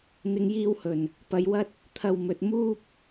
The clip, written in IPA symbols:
n̪ɪ˧ŋjiː˧whɵ˨˩n | pɐ˨˧jwɐ˧t̚ | t̪ʰɐ˨wmɵ˨t̚ muː˥p̚

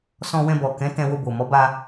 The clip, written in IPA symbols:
sɔ̃˧wɛ̃˧bɔ˨kɛ̃˨˦ tɛ̃˧wo˧bo˨ mɔ˨˦ba˧

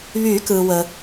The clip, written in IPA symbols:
βyː˨˩˦kɯː˩wə˩

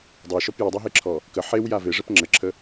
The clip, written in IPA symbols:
dˤeʃɔp jədˤɛɦeǁʰɔ | kə ħewja veʐɛp ŋ͡ǁəǁʰə

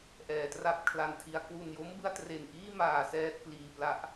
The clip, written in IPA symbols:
ʔɛː˨˩tra˥˩p̚kʰla˧ntʰi˧a̯ kwu˨˩njo˦˥mbɯ˧a̯ tre˨˩nʔiː˥˩maː˨˩ sɛː˥˩t̚pliː˨˩pla˦˥ʔ

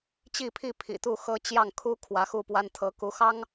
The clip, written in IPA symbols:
t͡ɕi˥˧pʰi˥˩ pʰḭ˨˩t̪u˥˩xɤ˥t͡ɕjɑ˥˩ŋ kʰu˥ kʰwä˧˥xu˥˩pwa˥n t̪ʰɤ˧˥ ku˧˥xɑ˥ŋ

